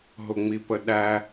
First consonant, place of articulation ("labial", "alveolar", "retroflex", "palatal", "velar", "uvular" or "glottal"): glottal